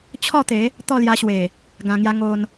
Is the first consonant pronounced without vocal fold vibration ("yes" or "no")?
yes